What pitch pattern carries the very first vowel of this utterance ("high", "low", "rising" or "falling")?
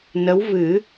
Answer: rising